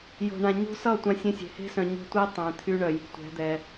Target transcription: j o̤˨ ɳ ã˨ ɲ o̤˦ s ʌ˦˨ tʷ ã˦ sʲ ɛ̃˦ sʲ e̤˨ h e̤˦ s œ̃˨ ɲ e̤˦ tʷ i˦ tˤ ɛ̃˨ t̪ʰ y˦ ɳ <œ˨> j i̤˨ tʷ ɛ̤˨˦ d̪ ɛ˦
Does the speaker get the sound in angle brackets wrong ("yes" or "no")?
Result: no